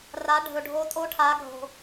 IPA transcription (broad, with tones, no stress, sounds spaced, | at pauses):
r a˨˦ ɖʱ ɵ˨ ɖʱ o˨˦ tʼ o˧˥˧ ʈʰ a˨˦ ɡʱ o̤˨